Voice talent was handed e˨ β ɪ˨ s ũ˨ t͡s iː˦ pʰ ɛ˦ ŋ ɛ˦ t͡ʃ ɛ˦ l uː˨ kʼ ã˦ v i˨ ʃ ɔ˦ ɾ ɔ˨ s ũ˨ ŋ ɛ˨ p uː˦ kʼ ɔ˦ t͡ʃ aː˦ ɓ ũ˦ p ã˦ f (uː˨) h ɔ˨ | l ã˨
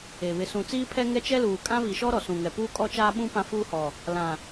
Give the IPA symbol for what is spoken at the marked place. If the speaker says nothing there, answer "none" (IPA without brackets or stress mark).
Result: uː˦